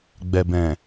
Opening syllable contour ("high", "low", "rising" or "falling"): low